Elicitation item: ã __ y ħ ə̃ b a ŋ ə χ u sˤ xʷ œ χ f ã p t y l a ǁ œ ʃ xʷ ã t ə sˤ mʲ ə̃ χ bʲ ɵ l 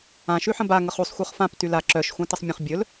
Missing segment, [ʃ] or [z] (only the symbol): ʃ